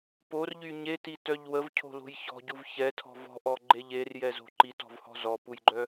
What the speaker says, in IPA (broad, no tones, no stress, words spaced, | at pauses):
porʎy ɲetitœʎ wəvcʰo̤lo̤j çɔ̤ɟuv çɛtʰɔ̤ vɔ̤ʔɔɡ͡ǃeʎ erjɛzo̤ ǃitɔ̤vhɔ̤ zɔpujɡ͡ǃœ